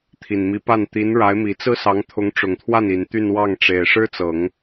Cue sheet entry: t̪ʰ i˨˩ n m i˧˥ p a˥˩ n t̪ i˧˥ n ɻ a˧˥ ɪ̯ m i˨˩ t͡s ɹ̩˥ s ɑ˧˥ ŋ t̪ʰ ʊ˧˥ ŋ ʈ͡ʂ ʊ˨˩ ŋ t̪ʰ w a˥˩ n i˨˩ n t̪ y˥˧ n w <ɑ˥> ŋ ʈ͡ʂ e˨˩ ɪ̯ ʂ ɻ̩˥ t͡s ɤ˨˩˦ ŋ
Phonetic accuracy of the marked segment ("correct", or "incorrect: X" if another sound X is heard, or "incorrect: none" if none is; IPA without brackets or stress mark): incorrect: ɑ˥˩